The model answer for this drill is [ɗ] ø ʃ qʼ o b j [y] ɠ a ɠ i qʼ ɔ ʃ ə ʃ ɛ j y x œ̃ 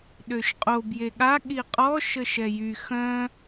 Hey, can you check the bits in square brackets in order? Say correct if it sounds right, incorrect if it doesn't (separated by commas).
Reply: correct, incorrect